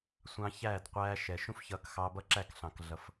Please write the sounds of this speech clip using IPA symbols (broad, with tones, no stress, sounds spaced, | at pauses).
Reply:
sʷ ɑ̃˧ ç æː˦˨ d qʷ æː˧ ʃ ɛ˨ ʃ ũ˦ f ç ʌː˧ k x ɑː˧ b ʌ˦ ǁ æ˦˨ k ɬ ɑ̃˨ k ɮ ʌ˨ f